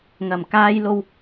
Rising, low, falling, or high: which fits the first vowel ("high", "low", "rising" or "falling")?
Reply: low